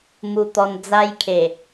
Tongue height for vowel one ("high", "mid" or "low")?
high